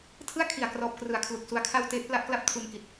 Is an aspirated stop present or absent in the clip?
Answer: present